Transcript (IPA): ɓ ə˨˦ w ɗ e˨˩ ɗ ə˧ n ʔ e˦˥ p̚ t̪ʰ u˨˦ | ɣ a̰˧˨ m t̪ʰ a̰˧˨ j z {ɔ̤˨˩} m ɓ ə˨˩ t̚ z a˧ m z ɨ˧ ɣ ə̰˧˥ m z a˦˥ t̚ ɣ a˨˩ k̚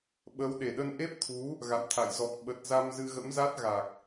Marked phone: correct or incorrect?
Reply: incorrect